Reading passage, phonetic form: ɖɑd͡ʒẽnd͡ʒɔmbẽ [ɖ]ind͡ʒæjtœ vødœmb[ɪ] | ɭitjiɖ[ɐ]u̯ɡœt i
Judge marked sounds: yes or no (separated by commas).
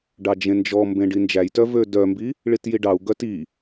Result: yes, no, no